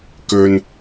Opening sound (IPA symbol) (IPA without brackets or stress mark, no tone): k